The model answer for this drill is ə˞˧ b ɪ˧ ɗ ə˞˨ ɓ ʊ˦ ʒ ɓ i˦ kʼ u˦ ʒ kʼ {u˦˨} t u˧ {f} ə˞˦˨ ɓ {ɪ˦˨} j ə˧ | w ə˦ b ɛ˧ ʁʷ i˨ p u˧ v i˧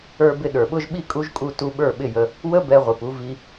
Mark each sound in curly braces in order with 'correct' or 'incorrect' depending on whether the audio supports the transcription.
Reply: correct, incorrect: ɓ, correct

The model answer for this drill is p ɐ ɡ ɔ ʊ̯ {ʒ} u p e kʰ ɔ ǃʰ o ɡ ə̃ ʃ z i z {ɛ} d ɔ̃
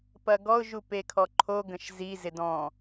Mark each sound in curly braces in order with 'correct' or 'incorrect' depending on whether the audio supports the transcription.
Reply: correct, incorrect: ɪ

